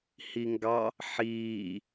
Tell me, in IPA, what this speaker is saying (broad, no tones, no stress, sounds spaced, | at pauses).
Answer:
h i ŋ ɡ ɑ | ħ iː